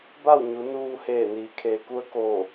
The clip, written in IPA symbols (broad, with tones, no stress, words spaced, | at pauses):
ba˥˨wɲu˩˧ nuː˧heː˧˩ niː˩kʰeː˩ku˧ə̯ ko˧˩